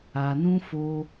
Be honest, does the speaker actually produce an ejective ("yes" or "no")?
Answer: no